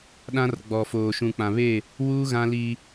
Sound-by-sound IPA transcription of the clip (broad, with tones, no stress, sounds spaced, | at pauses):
ɗ ã˦ r ɡ͡b ɔ˨ f oː˨ ʃ ũ˨ k͡p ã˨ β eː˦˨ | w u˦ ɣ ã˦ l iː˦